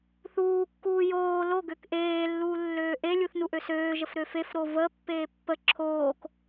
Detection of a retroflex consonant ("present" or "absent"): absent